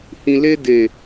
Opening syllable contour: low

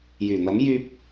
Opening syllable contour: low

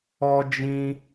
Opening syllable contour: high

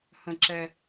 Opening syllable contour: low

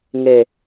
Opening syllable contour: low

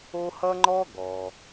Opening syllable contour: high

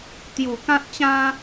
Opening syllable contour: low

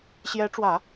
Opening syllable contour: rising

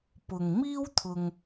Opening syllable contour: low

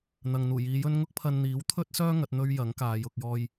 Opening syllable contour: low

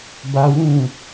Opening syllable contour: high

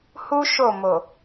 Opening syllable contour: high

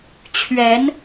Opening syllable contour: rising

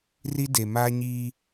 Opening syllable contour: high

